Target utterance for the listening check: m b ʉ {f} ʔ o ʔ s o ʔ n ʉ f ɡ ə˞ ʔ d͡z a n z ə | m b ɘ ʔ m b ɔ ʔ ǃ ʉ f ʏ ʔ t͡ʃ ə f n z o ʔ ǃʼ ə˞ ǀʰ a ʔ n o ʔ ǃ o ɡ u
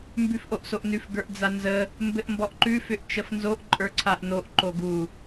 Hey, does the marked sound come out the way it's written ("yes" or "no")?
yes